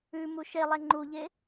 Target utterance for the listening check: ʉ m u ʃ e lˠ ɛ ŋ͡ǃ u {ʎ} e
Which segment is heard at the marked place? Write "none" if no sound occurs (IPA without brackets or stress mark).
ʎ